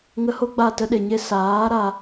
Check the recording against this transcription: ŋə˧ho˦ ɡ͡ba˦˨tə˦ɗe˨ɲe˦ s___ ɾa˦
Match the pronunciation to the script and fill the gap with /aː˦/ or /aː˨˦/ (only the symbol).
aː˨˦